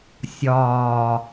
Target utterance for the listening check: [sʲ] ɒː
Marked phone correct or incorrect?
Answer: correct